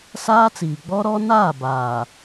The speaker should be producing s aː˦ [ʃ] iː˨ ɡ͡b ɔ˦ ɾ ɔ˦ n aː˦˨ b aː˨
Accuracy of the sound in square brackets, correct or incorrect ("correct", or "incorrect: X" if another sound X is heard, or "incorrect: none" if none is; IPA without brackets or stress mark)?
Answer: incorrect: t͡s